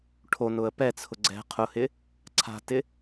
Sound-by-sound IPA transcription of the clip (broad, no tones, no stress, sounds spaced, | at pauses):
ʈʰ o n ʊ ə̯ p ɛ t͡sʰ ʊ ɡ͡ǀ ɛ̤ qʰ ʊ h ɪ | ǀʰ a̤ t ɪ